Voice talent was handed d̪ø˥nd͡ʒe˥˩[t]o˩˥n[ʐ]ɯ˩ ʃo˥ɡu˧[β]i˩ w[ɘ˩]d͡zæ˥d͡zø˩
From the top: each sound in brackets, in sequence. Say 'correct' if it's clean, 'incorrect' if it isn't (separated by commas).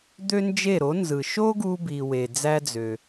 incorrect, incorrect, incorrect, incorrect